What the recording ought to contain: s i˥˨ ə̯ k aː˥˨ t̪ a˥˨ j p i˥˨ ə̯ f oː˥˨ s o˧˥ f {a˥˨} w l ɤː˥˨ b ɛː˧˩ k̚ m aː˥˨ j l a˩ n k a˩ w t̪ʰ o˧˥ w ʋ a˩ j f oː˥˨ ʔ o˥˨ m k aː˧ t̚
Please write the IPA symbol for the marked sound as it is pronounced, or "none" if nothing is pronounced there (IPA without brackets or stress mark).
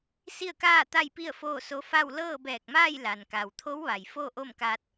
a˥˨